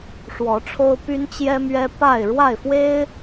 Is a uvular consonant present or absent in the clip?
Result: absent